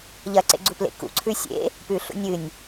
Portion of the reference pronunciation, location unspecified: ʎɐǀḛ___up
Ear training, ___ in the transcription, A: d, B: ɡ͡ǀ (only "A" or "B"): B